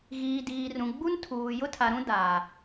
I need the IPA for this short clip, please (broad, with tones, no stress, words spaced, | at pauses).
ɣiː˨diː˨rũ˨ɡ͡bu˦n tʰuː˨ jʊ˦tʰa˨ɾũ˦ daː˨